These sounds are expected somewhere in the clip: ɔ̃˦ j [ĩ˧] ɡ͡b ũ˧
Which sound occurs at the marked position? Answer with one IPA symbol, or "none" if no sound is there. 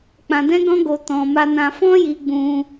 i˧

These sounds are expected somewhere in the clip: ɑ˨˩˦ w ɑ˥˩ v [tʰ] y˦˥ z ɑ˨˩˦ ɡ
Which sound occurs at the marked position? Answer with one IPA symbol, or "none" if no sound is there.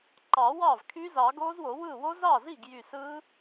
kʰ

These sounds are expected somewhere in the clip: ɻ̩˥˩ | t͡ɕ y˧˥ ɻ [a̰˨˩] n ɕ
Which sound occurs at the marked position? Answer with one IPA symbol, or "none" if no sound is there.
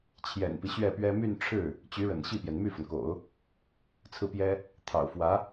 ə̰˨˩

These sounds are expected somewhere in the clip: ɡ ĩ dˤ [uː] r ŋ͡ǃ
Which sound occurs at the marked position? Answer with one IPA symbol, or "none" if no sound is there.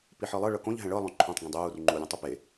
uː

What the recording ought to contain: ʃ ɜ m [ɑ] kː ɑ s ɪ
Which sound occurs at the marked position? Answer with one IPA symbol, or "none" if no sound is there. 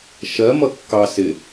ʌ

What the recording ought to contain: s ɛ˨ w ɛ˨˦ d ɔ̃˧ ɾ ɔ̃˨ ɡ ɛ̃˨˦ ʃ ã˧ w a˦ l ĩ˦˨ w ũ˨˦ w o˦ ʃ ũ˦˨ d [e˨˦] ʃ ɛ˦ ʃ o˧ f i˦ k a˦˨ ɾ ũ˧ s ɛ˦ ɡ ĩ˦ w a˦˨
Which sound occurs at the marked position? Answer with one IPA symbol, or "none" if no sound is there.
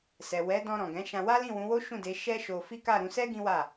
e˨˦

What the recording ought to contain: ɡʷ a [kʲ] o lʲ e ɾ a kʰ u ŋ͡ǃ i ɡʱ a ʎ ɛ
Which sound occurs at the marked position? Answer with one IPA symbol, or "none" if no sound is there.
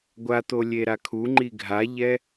t̪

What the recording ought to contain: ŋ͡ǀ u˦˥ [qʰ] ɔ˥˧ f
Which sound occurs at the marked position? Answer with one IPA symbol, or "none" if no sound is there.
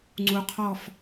qʰ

